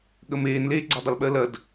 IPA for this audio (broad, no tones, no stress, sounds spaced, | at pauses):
ɠ ə m eː n l eː ɡ͡ǀ a dˤ ə l ɓ ɜ l ɐ d